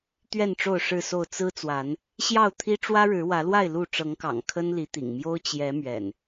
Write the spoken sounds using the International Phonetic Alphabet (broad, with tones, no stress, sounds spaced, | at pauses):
t̪ ɥ ɛ˥˨ n ʈ͡ʂ o˥˨ ʊ̯ ʂ ɻ̩˥˨ s o˥˨ ʊ̯ t͡s ɹ̩˦ t͡s w a˨˦ n | ɕ j ɑ˥˨ ʊ̯ t̪ʰ i˦ ʈ͡ʂ w ä˦ ɻ ɻ̩˨˦ w ä˨˦ l w a˥˨ ɪ̯ l u˥˨ ʈ͡ʂ ɤ˨˦ ŋ k ɑ̰˨˩ ŋ kʰ ə˦ n l i˨˦ t̪ ḭ˨˩ ŋ m j o˦ ʊ̯ t͡ɕ j ɛ˨˦ m ɥ ɛ̰˨˩ n